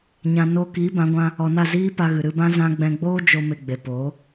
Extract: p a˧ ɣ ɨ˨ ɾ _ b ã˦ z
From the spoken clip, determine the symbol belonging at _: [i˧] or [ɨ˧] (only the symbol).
ɨ˧